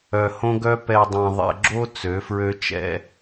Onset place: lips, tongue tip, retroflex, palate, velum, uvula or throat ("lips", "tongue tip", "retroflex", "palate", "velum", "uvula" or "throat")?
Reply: throat